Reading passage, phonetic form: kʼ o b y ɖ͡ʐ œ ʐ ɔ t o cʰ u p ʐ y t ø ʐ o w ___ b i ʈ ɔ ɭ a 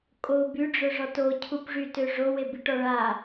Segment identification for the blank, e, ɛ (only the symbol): e